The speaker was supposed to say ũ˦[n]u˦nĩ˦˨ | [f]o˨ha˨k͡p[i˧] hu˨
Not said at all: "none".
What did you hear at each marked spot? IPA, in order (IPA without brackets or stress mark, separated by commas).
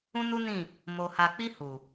n, m, i˧